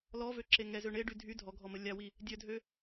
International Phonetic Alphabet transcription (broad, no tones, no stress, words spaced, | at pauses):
lɔvøǁe ŋɛzø ɳeɖy dʱy dʱɔɡʱɔmə lʲawi | dʲœdʱø